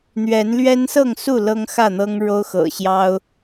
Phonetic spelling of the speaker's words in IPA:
n̪ ɥ ɛ˨˦ n l ɥ ɛ˦ n s ɤ˥˨ ŋ s u˥˨ l ɤ˦ ŋ x ä˥˨ n̪ ɤ˦ ŋ ɻ o˦ ʊ̯ x ɤ̰˨˩ ɕ j ɑ˦ ʊ̯

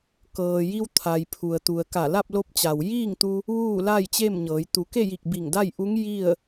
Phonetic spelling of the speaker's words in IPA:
k ɤː˩ j i˧ w t̪ʰ a˩ j pʰ u˩ ə̯ t̪ u˩ ə̯ k a˧˩ l a˥˨ p̚ l o˧ p̚ t͡ɕ a˩ w j iː˥˨ ŋ t̪ u˧ | ʋ uː˥˨ l a˥˨ j t͡ɕ e˥˨ m ɲ ɤː˩˧ j t̪ u˩˧ k e˥˨ j i˧˩ k̚ b i˧˩ ŋ d a˥˨ j ʔ u˧˥ ŋ j i˥˨ ə̯

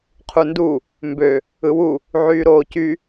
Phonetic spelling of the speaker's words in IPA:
qʰ u n d u | m b ø | ɯ w u | ʕ yː ɾ oː c y

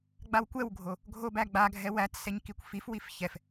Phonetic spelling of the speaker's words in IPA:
ɡ͡b a w kʷ ɛ w ɡʱ o | ɡʱ o b æ ɡ͡b a ɡʱ ɛ w æ t s ɛ ɲ k i kʷ f i f w i f ç ɛ f

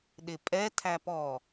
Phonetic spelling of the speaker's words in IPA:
ɗ ɪ pʼ ɛ tʰ æ p ɔ

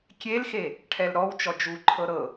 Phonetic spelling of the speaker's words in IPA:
kʲ e l x e | ʈʰ ɛ l ɾ ɔ w t͡ʃ ɔ d͡ʒ u ǃʰ ɤ ɾ ɤ

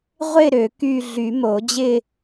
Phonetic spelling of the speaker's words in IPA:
ʁʷ ɪ˥˧ ɾ ø˨˩˦ k y˥˧ ɮ y˨˩˦ m o˨˩˦ d͡ʑ ɪ˥˧

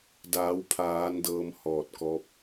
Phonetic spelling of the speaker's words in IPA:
d aː˩˧ w pʰ aː˩˧ n d ɤː˧ m h ɔː˧˩ t̚ k ɔː˧ p̚

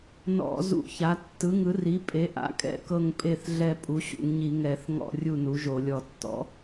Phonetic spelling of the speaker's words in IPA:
n ɔ̰˧˩˧ z ṵ˧˩˧ ç a˩˥ tː ɯ˩˥ ŋ ɯ˩˥ r i˩˥ pʼ e˩˥ ʔ a̰˩˥ kʼ ɛ̰˦˨ k ɤ˦˨ ŋ pʼ e˦˨ θ ɮ ɛ˦˨ pʼ u˩˥ ɕ ṵ˧˩˧ ŋ ɲ i˧˩˧ ŋ ɛ˧˩˧ θ ŋ ɔ̰˦˨ rʲ u˦˨ n u˩˥ ʒ o˧˩˧ lʲ ɔ˧˩˧ tː ɔ̰˩˥

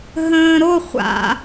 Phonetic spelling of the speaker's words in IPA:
ɦ ə̃ː ɾ o χʷ a̰

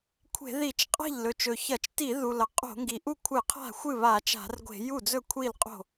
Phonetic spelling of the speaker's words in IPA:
kʷʰ e̤˧˩˧ ð i˧˩˧ t͡ʃ qʼ a̤˥˩ ʎ l ɵ˩ t͡ʃ ɵ˩ ç ɐ˧˩˧ t͡ʃ t i˧˩˧ ð u˩ l ɐ˩ qʼ o̤˧˩˧ ŋ ɡ i˩ ʔ u˥˩ kʷʰ ɨ˧˩˧ qʰ a̤˥˩ xʷ ɨ˥˩ β a˧˩˧ t͡ʃ a̤˧˩˧ r ɡʷ e̤˧˩˧ j u˥˩ d͡z ɵ˥˩ kʷʰ i˥˩ l qʼ o̤˥˩

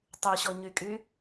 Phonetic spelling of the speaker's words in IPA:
tˤ y ɕ ɔ ɲ y kʼ y

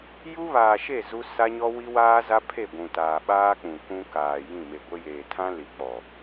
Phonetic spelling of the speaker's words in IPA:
j u˦ β aː˨ ʃ e˦˨ z u˦ s a˦ ɲ ɔ˦ w i˦ w aː˦ z a˦ pʰ e˦˨ ɡʷ ũ˨ t aː˨ ɓ aː˦ k͡p ũ˨ k ũ˦ k aː˨ j ĩ˦˨ m e˨ ɡʷ e˦ j eː˨ tʰ ã˦ l i˨˦ k͡p ɔ˨

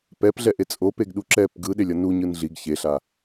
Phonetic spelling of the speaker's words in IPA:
p ɛ p ɮ ɛ ʔ e t͡sʼ o p e ɡ ɗ u ǁ ɛ p ɡ ɯ ɗ e lʲ ʌ n u ɲ ɯ n ɮ i ɡ ç e ɬ a

